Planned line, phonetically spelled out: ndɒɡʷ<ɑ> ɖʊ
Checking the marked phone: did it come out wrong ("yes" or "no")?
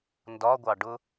no